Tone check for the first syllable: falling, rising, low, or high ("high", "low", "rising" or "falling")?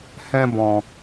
high